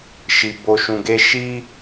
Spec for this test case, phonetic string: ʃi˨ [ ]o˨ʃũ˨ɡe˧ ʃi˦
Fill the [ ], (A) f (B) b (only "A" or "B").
B